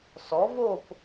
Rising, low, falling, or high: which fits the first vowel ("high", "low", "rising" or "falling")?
rising